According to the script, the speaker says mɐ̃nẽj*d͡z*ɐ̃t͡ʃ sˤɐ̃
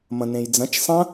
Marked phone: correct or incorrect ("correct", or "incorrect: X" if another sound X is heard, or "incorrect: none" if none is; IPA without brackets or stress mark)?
correct